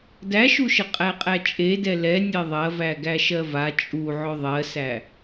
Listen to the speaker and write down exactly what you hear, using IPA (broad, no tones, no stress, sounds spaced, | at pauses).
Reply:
d æ ʃ u ʃ ə qʼ æ qʼ æ t͡ʃʼ e d ɛ l ɛ nʲ e ðˤ ɐ v æ ɡ æ ʃ ɜ v a t͡ʃʼ u ʕ ɵ ðˤ ɜ s æ